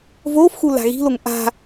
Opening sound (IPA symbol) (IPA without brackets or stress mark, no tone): v